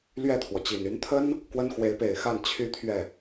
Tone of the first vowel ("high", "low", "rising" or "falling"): falling